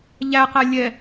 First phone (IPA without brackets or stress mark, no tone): ʎ